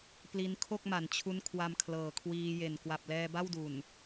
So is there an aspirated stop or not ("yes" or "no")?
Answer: yes